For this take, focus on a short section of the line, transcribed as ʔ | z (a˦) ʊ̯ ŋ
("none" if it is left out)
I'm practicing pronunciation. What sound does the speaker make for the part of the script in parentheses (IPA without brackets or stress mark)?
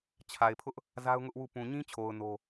a˦